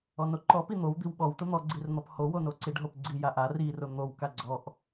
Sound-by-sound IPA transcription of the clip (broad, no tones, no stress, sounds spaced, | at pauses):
ɔ n o ǃ ɔ p i n̪ o w d̪ i w ɓ ɔ w t ʊ n̪ ɔ ɡ͡ǀ i r n̪ ɔ p h o w o n o ǀ i ɖ ɦ o p ɡ͡ǀ i j a ʔ a r i r ʊ n̪ o w k a ɡ͡ǀ ɔ ʔ